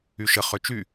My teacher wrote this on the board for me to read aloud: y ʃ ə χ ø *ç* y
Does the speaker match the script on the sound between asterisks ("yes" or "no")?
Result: no